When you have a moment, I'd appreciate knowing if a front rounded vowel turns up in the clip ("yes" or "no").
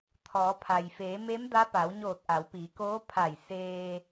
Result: no